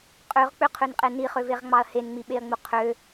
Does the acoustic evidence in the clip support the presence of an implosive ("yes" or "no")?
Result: yes